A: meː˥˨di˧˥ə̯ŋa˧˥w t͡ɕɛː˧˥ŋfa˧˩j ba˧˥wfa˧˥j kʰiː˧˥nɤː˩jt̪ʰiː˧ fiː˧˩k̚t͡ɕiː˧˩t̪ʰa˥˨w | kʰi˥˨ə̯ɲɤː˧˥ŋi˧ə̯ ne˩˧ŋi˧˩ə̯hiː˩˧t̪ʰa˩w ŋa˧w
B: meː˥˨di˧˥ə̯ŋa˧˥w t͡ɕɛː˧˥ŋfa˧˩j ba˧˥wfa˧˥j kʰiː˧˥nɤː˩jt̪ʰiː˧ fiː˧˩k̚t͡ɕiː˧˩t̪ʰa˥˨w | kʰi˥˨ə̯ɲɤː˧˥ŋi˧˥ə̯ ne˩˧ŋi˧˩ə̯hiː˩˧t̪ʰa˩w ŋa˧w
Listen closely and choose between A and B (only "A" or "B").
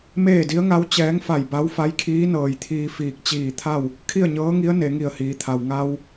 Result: B